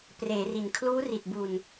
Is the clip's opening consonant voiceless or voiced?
voiceless